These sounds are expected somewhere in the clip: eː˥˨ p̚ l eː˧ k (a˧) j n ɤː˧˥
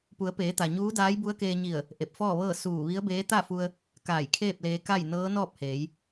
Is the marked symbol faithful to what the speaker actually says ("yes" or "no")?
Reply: no